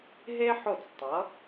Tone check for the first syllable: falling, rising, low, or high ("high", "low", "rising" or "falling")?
high